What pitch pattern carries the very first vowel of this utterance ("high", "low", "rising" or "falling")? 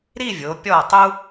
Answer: falling